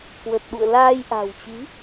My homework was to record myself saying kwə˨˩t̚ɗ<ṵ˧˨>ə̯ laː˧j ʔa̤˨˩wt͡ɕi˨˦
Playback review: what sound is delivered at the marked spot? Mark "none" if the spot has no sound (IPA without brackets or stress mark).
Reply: ṵ˧˨